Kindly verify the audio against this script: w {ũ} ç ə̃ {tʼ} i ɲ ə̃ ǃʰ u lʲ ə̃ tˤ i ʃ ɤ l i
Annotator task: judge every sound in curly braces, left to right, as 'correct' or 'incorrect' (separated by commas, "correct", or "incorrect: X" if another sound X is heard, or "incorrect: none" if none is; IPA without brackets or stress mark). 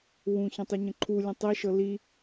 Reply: correct, incorrect: tˤ